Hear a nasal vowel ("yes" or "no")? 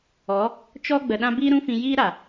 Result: yes